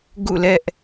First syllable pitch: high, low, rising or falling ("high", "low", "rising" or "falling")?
falling